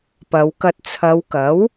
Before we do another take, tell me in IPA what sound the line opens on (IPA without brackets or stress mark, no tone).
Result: p